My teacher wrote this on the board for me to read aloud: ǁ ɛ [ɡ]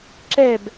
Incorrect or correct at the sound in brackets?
incorrect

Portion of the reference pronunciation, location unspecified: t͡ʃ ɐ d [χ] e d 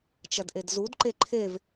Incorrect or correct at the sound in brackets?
incorrect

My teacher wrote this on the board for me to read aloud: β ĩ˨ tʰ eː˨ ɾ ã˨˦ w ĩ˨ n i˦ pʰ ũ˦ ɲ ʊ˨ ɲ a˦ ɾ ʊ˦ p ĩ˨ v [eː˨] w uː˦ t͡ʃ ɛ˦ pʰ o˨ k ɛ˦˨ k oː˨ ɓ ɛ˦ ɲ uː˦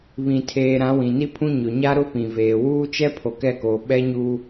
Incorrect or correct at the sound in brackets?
correct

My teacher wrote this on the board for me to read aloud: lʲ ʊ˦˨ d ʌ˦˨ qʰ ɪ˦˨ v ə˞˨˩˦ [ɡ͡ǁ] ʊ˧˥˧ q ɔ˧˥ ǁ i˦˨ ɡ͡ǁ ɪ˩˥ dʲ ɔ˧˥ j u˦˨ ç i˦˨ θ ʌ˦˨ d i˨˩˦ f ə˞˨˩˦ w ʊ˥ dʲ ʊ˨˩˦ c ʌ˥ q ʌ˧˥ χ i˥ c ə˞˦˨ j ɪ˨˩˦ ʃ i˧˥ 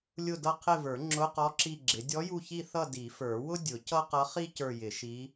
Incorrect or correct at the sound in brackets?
incorrect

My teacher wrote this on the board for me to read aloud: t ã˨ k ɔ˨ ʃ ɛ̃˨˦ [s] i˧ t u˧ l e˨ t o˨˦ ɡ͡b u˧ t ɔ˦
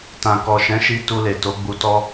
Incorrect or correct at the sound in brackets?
incorrect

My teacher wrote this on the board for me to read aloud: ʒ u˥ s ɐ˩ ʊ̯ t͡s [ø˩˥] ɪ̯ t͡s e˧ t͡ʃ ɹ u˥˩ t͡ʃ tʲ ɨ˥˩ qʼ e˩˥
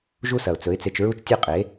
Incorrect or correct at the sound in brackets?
incorrect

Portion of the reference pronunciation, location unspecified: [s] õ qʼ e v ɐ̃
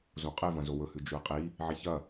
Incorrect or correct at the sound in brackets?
incorrect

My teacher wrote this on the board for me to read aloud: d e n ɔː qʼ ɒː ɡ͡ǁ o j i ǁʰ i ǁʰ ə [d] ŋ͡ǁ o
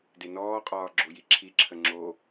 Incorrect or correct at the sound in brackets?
incorrect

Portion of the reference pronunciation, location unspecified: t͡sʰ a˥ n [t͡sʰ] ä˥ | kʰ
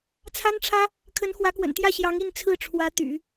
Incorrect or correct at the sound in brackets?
incorrect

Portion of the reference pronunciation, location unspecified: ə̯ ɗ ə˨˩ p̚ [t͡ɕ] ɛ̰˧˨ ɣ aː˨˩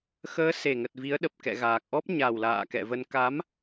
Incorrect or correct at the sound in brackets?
incorrect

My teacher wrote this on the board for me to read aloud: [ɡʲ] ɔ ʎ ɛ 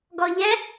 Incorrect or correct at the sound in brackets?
incorrect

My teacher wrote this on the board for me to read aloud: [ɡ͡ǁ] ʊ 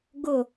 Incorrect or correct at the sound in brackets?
incorrect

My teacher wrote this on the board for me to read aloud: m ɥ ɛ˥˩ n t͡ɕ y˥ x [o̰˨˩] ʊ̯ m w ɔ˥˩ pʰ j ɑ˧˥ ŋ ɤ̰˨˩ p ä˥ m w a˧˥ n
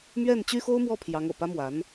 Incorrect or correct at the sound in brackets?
incorrect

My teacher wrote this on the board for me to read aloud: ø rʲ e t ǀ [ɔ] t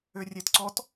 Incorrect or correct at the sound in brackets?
correct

